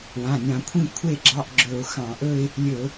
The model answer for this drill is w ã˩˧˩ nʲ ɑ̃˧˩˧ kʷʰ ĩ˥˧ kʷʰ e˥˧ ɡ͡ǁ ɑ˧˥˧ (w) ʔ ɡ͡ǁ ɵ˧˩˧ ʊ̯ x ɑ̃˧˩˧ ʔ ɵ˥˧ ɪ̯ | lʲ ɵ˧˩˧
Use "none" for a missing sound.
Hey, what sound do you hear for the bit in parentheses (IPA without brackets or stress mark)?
none